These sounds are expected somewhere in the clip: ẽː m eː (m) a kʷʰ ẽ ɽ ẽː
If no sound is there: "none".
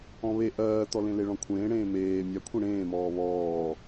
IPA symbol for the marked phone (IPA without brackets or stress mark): mʲ